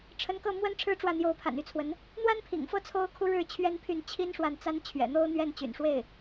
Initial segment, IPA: ʈ͡ʂʰ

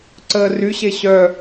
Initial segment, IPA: ǀ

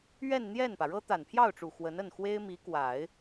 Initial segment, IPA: ɥ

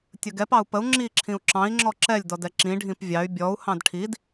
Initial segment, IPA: tʲ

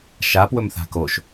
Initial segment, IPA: ʃ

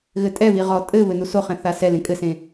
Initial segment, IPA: ɣ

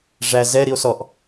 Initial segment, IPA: ʐ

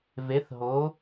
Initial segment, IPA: v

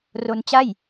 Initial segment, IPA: r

